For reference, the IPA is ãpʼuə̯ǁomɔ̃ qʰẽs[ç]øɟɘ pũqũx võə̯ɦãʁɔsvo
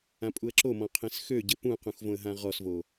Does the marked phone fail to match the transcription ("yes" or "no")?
yes